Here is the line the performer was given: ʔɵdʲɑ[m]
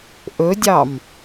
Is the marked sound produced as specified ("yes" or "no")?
yes